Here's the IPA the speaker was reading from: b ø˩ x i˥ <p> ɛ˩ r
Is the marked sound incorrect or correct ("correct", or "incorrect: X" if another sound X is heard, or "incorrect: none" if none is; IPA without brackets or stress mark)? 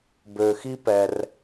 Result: correct